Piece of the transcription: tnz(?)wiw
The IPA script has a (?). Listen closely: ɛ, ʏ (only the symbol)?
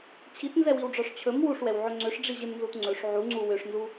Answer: ɛ